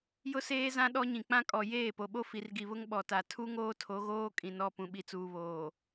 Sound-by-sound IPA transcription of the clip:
jʊ˦seː˦zã˦ ɗɔ˦ɲĩ˨k͡pã˦ kʼɔ˨ jeː˦˨po˨ɓo˦ fi˨rɡi˨βʊ˦ŋ ɓɔ˨ta˨ tʰu˦ŋoː˦tʰo˨˦ ɣoː˦kʼĩ˨nɔ˦˨ pũ˨ɓi˨t͡suː˨βoː˨

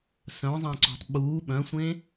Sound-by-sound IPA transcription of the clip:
sœ̃zˤẽǀṳtˤ ɓuː ɓœ̃sʷẽ

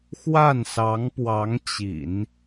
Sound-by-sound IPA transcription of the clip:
xwa˥˩nsɑ˧˥ŋpwɑ˧˥ŋt͡ɕḭ˨˩˦n

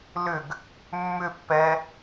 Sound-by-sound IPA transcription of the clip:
lʏɡ | mːʏpːɛ

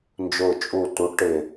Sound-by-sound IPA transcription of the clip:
nd͡ʒʊː˨˩t͡ʃʼu˨˩ tu˩˥ʈɪ˨˩

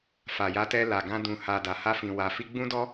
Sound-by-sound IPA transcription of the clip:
fa˨ja˧tɛ˧ la˨ɡã˧ dũ˨ha˨ da˨ha˧ fĩ˨wa˨fi˧ ɡ͡bũ˦dɔ˦

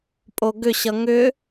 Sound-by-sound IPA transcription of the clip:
pʼoɡʏ ɕʌŋʏ

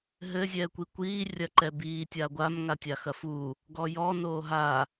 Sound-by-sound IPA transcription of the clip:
ɦɘ zʲɛːkʷikʷiː rʲɐǃɛbiː tʲaɡʷam ŋatʲaxɐfu | ɡɔjɔ noːɦa

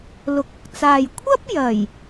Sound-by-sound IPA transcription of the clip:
lʊ˨k̚ʊ˨k̚t͡saː˨j kʷʰɐ˥p̚ jɐ˨˩j

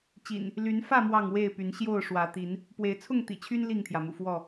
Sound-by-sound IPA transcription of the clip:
t͡ɕḭ˨˩n | ly˨˦n fä˥˨ mwɑ˥˨ŋwe˥˨ɪ̯py˨˦n ɕjo˥˨ʊ̯ʂwä˨˦ t̪i˨˦n | pwe˨˦ɪ̯t͡sʰʊ˥˨ŋt̪ḭ˨˩t͡ɕʰy˦n li˥˨ŋt̪ʰjä˩mṵ˨˩ fwɔ˥˨

